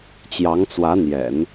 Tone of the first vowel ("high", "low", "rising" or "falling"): rising